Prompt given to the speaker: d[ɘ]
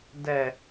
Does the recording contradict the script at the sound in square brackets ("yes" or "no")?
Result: yes